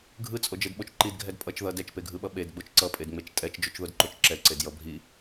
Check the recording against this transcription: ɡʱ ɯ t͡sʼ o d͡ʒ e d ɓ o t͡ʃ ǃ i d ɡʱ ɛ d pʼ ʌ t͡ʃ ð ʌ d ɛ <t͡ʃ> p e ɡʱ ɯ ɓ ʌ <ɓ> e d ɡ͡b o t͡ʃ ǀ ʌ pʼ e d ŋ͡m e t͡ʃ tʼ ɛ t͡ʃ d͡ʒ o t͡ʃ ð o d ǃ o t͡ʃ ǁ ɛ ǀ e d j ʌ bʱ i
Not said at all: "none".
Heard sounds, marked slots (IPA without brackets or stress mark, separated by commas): t͡ʃ, ɓ